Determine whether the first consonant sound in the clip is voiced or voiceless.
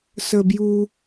voiceless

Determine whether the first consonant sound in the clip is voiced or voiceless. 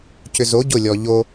voiceless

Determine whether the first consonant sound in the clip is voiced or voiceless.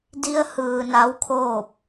voiced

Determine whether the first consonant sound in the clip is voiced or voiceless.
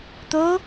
voiceless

